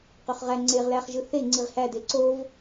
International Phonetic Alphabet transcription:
q ø χ ʁ æ ŋ͡ǀ e ʁ l æ χ ʒ ɯ θ e ŋ͡ǀ i ʁ h æ d e ǀ o v

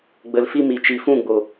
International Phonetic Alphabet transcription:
ɡ͡b ə˧ l f i˦ m i˨ t͡ʃ i˨ f ũ˦˨ ɡ͡b o˨

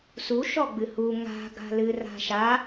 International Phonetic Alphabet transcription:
s u ʃ ɔ ɡ͡b ɨ h u ŋ a̤ ɡ a̤ l ɨ r a̤ ʃ a

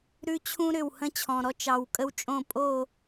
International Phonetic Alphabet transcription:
ɾ ʉ˦ t͡ɕʰ ũ˦ ɾ ʏ˦˨ w h ə̃˦ t͡ɕʰ ɔ̃˨ ɾ ɔ˦ t͡ʃ ɑ˨ w kʼ ə˦ w t͡ʃʼ õ˦˨ pʼ o˦˨

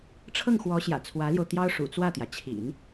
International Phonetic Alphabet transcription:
ʈ͡ʂʰ ɤ˥˩ ŋ x w ɔ˧˥ ɕ j ä̰˨˩ t͡sʰ w ä˧˥ l j o˧ ʊ̯ t̪ j ɑ˥ ʊ̯ ʂ ṵ˨˩ t͡s w ä˥˩ t̪ j ä˩ t͡ɕʰ ḭ˨˩˦ n

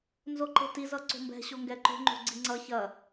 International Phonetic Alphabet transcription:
n z o ǃ e̤ t i z ʌ ǀ o̤ m b ɛ̤ ɕ o ŋ ɡ ɛ ǃ o̤ ŋ͡ǃ o̤ ɡ͡ǀ i ŋ͡ǀ ʌ ç ɐ

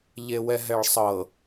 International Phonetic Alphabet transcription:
ʎ e w ɛ ɦ ɛ ɭ sˤ ɤ

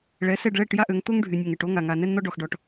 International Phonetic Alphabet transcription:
ɭ ɛ˨˦ s ɛ˦˨ ɖ ɭ ɛ˦˨ ʈ j a˦ ʔ ø˨˦ ŋ t̪ o˦ ŋ ɖʱ y˨ nʲ o˨ ŋ ɛ˨ ʈ o˦ ŋ a˨ ŋ a˨ n ɛ˦ n n̪ ɔ˦ ɖ ɔ˨ x ɖ ɔ˨ ʈ

